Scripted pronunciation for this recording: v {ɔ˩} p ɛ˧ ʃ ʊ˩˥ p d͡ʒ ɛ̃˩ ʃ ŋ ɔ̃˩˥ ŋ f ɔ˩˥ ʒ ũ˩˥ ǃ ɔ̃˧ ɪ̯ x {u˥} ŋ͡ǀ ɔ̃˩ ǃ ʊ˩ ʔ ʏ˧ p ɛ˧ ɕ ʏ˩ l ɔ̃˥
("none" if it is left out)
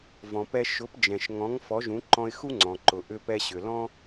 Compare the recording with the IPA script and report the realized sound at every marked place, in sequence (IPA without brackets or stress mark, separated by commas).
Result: ɔ̃˩, u˥